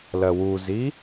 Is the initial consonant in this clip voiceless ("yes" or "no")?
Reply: no